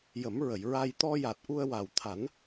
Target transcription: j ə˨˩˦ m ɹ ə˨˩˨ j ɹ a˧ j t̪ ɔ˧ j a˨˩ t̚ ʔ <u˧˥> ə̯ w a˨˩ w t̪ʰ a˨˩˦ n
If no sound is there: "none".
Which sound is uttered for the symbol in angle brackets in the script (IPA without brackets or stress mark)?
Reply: u˧